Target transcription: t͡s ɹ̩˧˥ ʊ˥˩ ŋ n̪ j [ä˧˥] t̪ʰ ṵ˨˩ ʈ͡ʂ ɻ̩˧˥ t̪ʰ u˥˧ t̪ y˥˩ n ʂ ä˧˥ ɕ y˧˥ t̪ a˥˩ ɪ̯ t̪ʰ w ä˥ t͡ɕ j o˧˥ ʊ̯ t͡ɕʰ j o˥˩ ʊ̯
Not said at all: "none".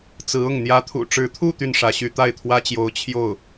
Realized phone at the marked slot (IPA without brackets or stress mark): ä˧˥